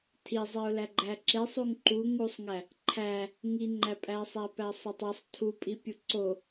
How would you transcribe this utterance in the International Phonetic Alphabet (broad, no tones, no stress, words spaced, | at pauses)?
tʰizˤeʊ̯læ ɡ͡ǃæǁesˤ uŋǃu ŋusˤŋæ | ǃʰæ | ŋiŋ͡ǃæpʼæsˤæ pæsˤotˤesˤ tʰupʼipʲu ǀo